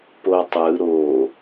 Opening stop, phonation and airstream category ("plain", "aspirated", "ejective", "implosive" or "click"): plain